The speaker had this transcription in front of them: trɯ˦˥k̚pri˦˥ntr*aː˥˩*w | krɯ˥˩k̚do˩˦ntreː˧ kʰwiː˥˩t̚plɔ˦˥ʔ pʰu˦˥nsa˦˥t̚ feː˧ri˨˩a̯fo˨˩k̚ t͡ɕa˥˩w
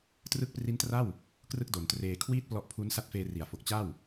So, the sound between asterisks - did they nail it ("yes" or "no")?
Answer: no